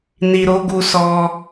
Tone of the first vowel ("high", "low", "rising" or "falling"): low